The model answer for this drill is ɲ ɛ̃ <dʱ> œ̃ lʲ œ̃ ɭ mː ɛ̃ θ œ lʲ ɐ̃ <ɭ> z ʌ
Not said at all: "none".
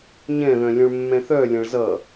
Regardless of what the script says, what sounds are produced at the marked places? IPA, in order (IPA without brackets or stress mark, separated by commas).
ð, ɭ